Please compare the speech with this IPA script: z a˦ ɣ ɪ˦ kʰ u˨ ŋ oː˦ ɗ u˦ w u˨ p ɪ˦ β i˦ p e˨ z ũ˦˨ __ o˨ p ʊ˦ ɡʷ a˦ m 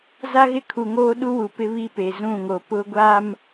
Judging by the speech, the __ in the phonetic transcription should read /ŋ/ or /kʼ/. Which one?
ŋ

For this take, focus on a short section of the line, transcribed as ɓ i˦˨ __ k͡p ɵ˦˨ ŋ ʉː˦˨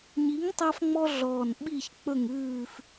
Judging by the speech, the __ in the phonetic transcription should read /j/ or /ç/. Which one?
ç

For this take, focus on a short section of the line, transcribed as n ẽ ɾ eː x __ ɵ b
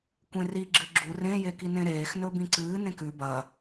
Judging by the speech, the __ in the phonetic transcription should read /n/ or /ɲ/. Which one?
n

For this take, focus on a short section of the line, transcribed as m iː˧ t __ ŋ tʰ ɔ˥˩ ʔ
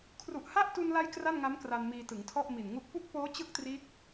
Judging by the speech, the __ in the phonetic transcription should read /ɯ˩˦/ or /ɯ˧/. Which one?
ɯ˩˦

